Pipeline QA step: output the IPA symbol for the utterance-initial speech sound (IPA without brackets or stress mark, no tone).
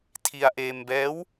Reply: tʰ